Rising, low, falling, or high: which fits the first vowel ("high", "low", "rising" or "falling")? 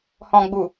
low